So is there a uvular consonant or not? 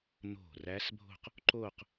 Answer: yes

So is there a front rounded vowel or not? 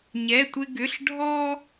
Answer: yes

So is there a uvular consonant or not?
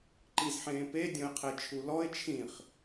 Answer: yes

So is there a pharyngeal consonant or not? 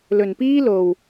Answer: no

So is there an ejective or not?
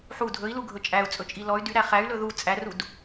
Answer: yes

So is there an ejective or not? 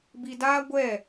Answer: no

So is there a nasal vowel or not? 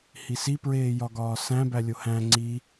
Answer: yes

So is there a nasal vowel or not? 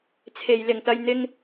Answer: no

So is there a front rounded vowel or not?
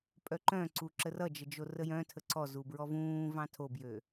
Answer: yes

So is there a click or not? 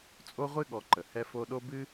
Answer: yes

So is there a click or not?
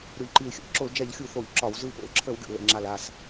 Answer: yes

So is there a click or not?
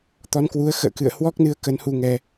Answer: no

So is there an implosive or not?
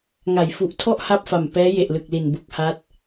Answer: no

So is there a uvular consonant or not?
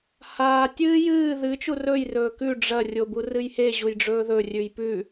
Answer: no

